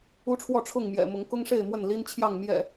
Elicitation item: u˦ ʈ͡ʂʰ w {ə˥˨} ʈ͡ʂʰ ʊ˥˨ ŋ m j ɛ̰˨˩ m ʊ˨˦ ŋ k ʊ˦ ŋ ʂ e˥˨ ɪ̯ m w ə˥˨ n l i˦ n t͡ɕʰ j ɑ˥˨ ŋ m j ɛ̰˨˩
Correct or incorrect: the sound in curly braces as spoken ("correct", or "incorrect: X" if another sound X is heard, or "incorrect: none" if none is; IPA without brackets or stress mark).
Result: incorrect: ɔ˥˨